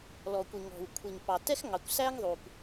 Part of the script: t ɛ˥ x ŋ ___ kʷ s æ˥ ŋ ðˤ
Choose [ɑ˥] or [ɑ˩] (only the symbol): ɑ˩